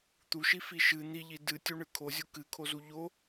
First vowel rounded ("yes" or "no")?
yes